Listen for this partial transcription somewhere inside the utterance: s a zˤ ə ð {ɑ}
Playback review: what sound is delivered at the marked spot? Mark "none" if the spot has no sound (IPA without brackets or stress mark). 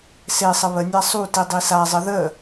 ə